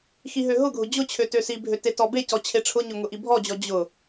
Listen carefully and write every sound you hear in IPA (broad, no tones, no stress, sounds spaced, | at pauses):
x i ɦ ø ɦ ʊ ɡʱ ʊ d͡ʑ ʊ t͡ɕʰ ø t ø s i bʱ ø t e t ɔ b e c ɔ t͡ɕʰ e ʈ͡ʂʰ ʊ ɲ ʊ ŋ ʊ ʔ i bʱ ɔ d͡ʑ ɔ d͡ʑ ʊ